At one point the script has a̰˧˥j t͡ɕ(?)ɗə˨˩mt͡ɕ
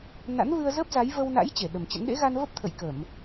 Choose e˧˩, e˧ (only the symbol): e˧˩